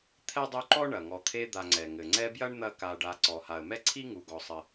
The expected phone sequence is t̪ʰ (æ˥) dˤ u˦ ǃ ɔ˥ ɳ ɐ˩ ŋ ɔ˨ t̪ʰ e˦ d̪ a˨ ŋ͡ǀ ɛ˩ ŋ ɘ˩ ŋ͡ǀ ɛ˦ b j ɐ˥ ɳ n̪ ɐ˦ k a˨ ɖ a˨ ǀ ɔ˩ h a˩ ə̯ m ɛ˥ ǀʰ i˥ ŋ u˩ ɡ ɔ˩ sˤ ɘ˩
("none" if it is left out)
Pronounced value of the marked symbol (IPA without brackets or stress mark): ɛ˥